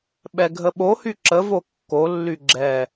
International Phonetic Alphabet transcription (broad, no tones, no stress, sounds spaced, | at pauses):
ɓ ɛ ɡʱ ə ɓ o h y ǁ ə v o kː o lː y ɡ͡ǁ ɛ